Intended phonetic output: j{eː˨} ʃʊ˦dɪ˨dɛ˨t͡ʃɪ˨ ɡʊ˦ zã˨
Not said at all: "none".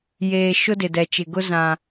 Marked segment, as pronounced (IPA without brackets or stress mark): eː˨